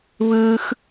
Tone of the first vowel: high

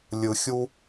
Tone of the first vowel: low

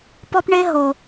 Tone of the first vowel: high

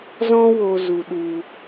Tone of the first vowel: high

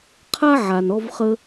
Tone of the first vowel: high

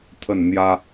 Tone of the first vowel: falling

